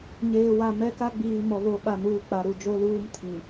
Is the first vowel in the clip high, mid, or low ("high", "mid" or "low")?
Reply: mid